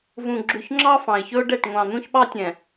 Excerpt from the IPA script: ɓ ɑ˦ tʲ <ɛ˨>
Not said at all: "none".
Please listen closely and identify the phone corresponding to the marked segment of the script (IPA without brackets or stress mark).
ɛ̃˨